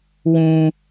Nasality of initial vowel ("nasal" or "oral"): nasal